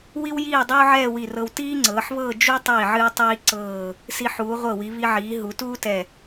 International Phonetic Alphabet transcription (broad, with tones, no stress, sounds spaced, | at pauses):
w i˥ w j iː˥˧ dˤ uː˥ ʕ ɛː˥˧ w i˧˩ r ɤ˧ w t iː˥ ŋ͡ǀ ɤː˩˧ ħ β ɤː˥˧ d͡ʒ u˥ tˤ iː˧˩ ʕ ɨː˧ tˤ iː˧ ǀ ɤː˧˩ | s i˧ ħ uː˩˧ ʁʷ ɤ˧˩ w i˩˧ β i˧ ʕ iː˩˧ ɦ u˩˧ t uː˥ t ɛ˧˩